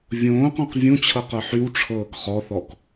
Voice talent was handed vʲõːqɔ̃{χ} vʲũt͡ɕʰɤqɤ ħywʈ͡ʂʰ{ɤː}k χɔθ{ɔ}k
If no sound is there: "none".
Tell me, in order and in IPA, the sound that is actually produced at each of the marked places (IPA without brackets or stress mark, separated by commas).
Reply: q, ɤː, ɔ